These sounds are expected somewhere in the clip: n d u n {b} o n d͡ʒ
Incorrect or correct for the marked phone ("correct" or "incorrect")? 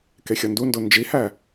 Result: incorrect